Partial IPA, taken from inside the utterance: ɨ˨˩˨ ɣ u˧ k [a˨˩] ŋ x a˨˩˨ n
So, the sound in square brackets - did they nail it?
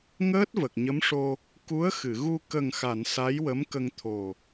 no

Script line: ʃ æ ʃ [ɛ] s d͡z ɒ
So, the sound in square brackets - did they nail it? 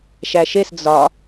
no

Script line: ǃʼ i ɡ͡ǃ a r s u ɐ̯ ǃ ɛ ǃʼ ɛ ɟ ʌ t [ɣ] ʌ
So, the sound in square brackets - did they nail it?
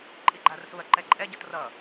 no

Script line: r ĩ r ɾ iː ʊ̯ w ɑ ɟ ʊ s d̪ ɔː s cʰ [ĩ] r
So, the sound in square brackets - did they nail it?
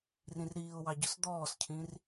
yes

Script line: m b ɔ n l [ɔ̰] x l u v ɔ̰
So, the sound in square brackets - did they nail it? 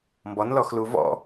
no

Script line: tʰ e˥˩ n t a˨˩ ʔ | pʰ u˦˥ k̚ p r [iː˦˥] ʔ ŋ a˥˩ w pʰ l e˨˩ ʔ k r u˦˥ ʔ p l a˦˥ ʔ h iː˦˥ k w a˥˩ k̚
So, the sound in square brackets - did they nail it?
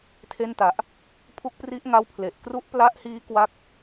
no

